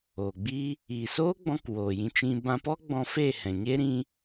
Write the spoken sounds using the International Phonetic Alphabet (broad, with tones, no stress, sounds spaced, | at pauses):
oː˨ ɡ͡b i˦ | iː˨ s oː˦ ɡ͡b ɔ̃˧ k w oː˨ j ĩ˧ t͡ʃ ĩ˧ b ã˧ p ɔ˦ ɡ͡b ɔ̃˧ f e˦˨ h ɛ̃˨ ɲ e˦ ɾ ĩ˦